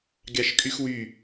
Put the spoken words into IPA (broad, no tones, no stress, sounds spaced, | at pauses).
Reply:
ɡʲ ɑ ʃ kʼ y x w y